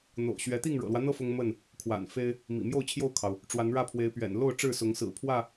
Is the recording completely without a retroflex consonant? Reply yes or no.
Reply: no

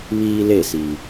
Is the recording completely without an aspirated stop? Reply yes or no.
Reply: yes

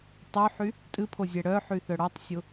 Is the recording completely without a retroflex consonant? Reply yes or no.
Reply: no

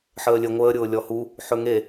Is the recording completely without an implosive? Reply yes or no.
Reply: yes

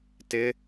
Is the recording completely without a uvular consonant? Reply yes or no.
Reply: yes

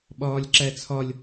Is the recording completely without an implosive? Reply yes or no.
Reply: no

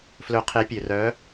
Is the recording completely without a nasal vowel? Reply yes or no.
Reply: yes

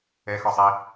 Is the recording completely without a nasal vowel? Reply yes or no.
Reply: yes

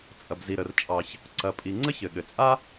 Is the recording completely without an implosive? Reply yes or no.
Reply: no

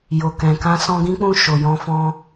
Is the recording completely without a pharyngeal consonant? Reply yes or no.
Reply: yes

